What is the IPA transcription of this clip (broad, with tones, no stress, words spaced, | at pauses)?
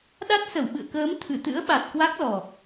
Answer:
ɗa˦˥t̚sə˧˩wɓɨ̰˧˨ə̯kəː˨˦m t̪ʰɨ˧˩t̪ɨ̰˧˥ə̯ɓa˨˩t̚ kwa˦˥k̚lɔ˨˩